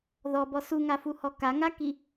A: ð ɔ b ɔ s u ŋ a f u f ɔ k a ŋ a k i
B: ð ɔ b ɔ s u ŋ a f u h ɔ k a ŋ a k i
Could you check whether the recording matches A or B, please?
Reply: B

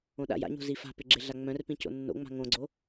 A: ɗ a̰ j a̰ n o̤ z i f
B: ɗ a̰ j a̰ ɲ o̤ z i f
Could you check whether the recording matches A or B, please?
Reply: B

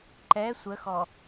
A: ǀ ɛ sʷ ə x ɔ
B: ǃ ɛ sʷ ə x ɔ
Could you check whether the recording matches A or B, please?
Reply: B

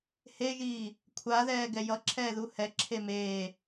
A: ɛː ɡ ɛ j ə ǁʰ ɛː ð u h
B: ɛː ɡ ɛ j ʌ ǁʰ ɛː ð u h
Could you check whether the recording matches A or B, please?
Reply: B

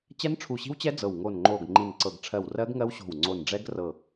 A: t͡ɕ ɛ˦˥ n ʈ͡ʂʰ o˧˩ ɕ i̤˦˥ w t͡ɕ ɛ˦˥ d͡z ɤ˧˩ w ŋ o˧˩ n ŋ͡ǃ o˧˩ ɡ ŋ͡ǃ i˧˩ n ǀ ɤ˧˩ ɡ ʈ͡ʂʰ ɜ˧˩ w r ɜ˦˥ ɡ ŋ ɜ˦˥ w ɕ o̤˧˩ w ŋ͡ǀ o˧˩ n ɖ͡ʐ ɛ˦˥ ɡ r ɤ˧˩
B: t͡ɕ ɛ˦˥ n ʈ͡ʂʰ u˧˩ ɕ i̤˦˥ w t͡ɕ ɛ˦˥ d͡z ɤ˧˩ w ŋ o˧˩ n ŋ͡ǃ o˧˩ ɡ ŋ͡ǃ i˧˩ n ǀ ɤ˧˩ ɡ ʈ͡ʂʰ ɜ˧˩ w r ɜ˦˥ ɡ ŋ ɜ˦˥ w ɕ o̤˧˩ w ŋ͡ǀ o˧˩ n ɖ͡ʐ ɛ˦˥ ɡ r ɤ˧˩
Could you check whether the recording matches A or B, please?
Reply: B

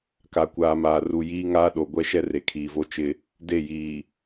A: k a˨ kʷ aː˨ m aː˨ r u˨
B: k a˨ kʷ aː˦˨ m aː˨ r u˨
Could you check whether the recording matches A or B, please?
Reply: A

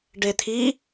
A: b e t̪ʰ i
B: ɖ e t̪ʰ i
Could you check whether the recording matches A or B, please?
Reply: B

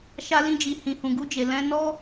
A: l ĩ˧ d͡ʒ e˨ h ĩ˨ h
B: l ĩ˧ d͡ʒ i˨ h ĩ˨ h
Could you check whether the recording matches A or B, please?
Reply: B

